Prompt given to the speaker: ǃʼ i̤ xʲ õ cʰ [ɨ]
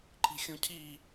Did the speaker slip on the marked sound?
yes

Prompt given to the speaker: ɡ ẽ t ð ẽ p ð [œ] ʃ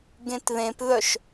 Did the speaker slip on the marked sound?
no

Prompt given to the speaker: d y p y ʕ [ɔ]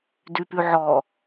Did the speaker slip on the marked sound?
no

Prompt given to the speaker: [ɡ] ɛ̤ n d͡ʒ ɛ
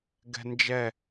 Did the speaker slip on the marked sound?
no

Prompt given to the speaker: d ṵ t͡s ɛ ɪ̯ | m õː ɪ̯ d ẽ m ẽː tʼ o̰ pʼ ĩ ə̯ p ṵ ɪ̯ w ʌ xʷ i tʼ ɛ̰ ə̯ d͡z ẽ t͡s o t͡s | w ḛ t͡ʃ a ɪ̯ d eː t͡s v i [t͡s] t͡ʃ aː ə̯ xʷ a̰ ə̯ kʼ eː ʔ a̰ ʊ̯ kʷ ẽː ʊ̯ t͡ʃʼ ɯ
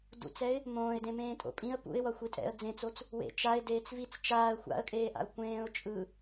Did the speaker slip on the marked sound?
no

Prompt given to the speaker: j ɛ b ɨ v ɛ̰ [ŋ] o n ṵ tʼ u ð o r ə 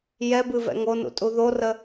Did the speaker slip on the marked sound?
no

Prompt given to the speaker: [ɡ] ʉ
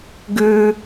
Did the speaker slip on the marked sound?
no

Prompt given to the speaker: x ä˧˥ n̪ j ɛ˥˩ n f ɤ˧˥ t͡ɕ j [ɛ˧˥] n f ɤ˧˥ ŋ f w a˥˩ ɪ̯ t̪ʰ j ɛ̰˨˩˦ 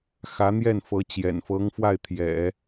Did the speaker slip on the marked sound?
yes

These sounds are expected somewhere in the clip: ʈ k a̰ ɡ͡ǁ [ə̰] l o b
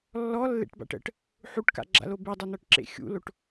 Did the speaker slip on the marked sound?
yes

